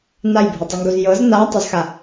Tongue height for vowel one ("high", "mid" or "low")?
low